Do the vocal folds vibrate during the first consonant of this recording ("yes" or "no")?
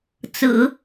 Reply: no